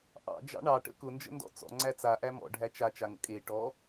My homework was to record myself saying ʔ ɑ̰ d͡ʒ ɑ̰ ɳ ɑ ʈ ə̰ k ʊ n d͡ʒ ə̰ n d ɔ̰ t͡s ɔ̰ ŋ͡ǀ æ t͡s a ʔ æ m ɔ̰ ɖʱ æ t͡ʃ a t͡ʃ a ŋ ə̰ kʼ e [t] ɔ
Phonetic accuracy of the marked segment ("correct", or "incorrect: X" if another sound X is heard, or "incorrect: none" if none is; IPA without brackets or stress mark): incorrect: ʈ